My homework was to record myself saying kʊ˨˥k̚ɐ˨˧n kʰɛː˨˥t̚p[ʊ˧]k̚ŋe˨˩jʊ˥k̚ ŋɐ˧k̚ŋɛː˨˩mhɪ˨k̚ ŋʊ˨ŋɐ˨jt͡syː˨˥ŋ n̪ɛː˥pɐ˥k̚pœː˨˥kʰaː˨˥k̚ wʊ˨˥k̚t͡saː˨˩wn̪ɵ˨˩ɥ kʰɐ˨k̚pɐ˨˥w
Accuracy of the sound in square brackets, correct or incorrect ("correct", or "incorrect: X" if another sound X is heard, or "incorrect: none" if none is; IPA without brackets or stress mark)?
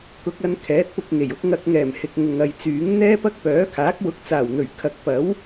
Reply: correct